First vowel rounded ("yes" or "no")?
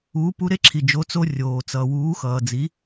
yes